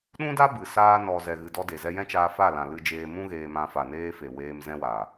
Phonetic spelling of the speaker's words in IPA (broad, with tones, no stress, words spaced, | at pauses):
ɗũ˦da˦ bɨ˨saː˧nɔ˨ zɛ˨ɣɨ˨dɔ˧ de˨zɛ˧jɛ̃˦t͡ʃaː˧ fa˦˨lã˨lɨ˧d͡ʒeː˧ mũ˦ɣeː˧mã˧ fa˨neː˧fe˨ weː˧m zɛ̃˧wa˨